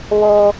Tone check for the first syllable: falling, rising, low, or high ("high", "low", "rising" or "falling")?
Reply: high